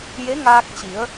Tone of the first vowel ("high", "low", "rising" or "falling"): rising